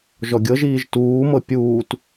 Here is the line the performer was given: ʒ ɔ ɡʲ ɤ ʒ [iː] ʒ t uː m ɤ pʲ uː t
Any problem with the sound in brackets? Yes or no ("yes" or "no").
no